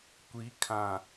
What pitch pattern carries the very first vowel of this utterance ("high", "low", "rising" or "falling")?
rising